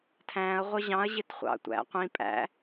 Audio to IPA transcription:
tʰæ̃ɐ̯ ʁʷʌʑɑ̃ɐ̯ ʑɪtχʷɑ̰tʷæ̰ qʷĩ pʼæ̰

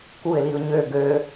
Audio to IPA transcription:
kuɪ̯liʊ̯ ɲø ɡø

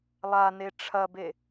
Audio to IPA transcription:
lˠane ʈ͡ʂʰɐbe

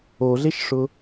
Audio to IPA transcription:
oɮeʃʂʊ

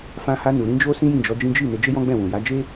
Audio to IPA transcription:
fã˧ha˧nu˨ ɾĩ˧d͡ʒo˦ sĩ˦jĩ˦˨d͡ʒɔ˨˦d͡ʒĩ˦ d͡ʒi˦˨ ne˧d͡ʒe˦jɔ̃˦ ɡ͡bɛ̃˦˨wũ˨ ja˨˦d͡ʒe˦

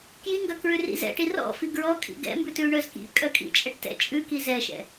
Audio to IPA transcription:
kjiŋɡœ kɹʉrḭzɛ̰ʈi rɔ̰fi ɡɹɔkʼḭ ɡɛ̰mbʉ tʉɳœzkḭ kʼœkʼḭ t͡ʃʼɛʈtɛ̰ t͡ʃʼʉki zɛʃɛ̰

